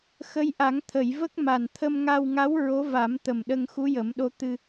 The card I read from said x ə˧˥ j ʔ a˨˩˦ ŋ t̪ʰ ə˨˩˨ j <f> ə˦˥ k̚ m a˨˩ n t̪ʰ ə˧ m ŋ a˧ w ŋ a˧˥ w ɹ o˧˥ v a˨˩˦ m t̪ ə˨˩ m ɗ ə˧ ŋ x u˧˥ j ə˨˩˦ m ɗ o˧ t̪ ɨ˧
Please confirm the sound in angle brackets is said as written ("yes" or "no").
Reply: no